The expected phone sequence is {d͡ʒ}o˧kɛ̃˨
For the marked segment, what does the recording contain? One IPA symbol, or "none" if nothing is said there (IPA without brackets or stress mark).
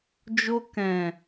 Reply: d͡ʒ